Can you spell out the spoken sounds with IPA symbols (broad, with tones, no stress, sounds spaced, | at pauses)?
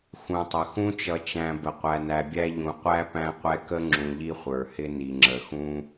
x ũ˩ tˤ ə˩ x ũ˦ t͡ʃ ʌ˨ t͡ʃ æ̃˨ b ə˩ qʷ æ˨ n æ˨ bʲ æ˦ ʎ ũ˨ qʷ æ˥ p æ̃˦ qʷ ɛ˦ k ə˥ ŋ͡ǁ ũ˨ ʎ i˦ χʷ ə˞˩ h ɪ˦ n i˨ ŋ͡ǁ ə˨ x ũ˥